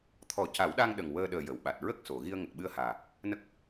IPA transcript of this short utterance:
t̪ʰ ɔ˨˩˦ c a˨˩˦ w ɗ a˧ ŋ ɗ ə˨˩ ŋ w əː˧ ɗ əː˨˩ j ə˨˩˨ w ɓ a˨˩ t̚ ɹ ə˦˥ k̚ s o˨˩˨ ɣ i˧ ə̯ ŋ ə˨˩ k̚ ɓ ɨ˧ ə̯ h aː˨˩ | n ə˦˥ k̚

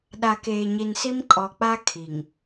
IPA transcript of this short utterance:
ɗ a˨ k eː˨ ɲ i˨ n s i˦ m kʼ ɔ˨ k͡p a˦ kʰ i˨ ŋ

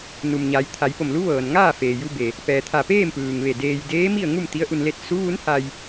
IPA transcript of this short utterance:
n u˩ m ɲ a˩˧ j t̪ʰ a˩˧ j p o˧˩ m l u˧˥ ʋ ɤː˩ n ŋ aː˥˨ f eː˩ j u˧ b e˩ | p ɛː˩ t̪ʰ a˧˩ p eː˥˨ m p ɯː˩ ŋ ʋ e˧˩ d eː˧ j d eː˧˥ m i˥˨ ə̯ ŋ u˥˨ m t̪ i˧˥ ə̯ ʔ u˧ n l e˥˨ t̚ s u˧˥ ʋ u˧˥ n h a˧ j

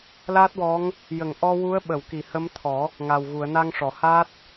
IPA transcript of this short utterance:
l a˦˥ t̚ w ɔ˧˥ ŋ | j ə˨˩˨ ŋ ʔ ɔ˧ w u˧˥ ə̯ ɓ ə˨˩˨ w k i˨˩˨ h ə˧˥ m t̪ʰ ɔ˨˩˦ | ŋ a˨˩ w ɣ u˨˩˨ ə̯ n a˧ ŋ ʂ ɔ˨˩˨ h a˦˥ t̚

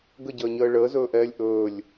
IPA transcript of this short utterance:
ɡ ə ɟ əː ɲ əː ɭ əː z ɵː ʔ ɛː lʲ ʔ ɵː lʲ

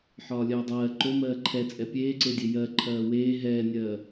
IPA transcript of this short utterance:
ħ ɒː lʲ ɜː dˤ ɜː ǃ o m ɜː ǃʰ ɛ t͡sʼ ɛ pʲ eː ǀ e dʲ e j ɜ ǃʰ ɜː w eː ɦ ɛː nʲ ɜː

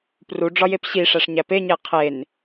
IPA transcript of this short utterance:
p r u ɖ͡ʐ ɒ j e p ɕ i ʂ æ ʂ ɲ æ p e ɲ e qʰ e n

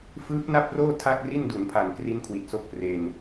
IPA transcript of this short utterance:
f ɯː˦˥ p̚ n a˥˩ p̚ r oː˥˩ tʰ a˥˩ k̚ r i˥˩ n d u˩˦ n pʰ a˨˩ n k r i˦˥ n kʰ w i˨˩ t̚ s o˥˩ k̚ p r e˧ n

